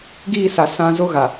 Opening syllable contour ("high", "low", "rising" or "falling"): falling